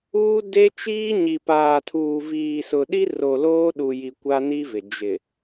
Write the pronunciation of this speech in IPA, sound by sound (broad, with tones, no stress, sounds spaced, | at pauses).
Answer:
uː˦ d e˦ t͡ʃ iː˦ ɲ i˨ p aː˨ tʰ uː˨ v iː˨ s ʊ˨ ɗ i˦ r o˨ l oː˦ ɗ u˨ j i˨ kʷ a˦ n i˦ v ɪ˨ d͡ʒ ɪ˨